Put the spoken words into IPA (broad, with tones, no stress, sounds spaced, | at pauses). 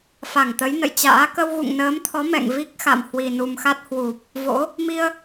f a˧˩ ŋ t̪ ə˨˦ j n ə̰˧˨ j t͡ɕ a̰ː˧˥ k ə˧ w ɣ ṵ˧˨ ŋ n əː˨˦ m t̪ʰ ɔ˨˦ m ɛ̰˧˨ ŋ v i˦˥ k̚ x a̰˧˨ m h w i˨˩ n u˨˩ m x a˦˥ t̚ h w u˨˩ p̚ | v o̰˧˥ | m i˧ ə̯